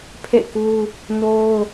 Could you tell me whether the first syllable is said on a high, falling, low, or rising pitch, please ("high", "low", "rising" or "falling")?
falling